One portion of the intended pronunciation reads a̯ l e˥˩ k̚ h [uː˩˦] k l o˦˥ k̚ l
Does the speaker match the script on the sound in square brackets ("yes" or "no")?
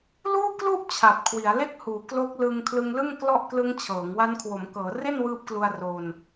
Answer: yes